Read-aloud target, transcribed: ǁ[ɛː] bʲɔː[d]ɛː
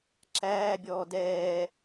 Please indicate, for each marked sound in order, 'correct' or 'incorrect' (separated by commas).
incorrect, correct